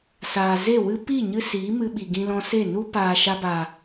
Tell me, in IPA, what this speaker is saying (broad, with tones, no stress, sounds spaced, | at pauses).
s aː˨ z e˦˨ w ɨ˧ p i˦˨ ɲ ɨ˧ s iː˨˦ m ɨ˧ ɓ i˨ ɡ ĩ˧ l ɔ̃˧ s e˦˨ n u˦ p aː˨ ʃ a˧ b a˨